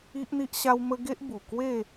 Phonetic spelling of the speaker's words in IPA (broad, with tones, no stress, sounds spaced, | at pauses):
i˦ ʔ n̪ i˦ ʔ ɕ a˦ w m ə˦ ɡ e˦ ʔ b u˨˩ k w e˥˧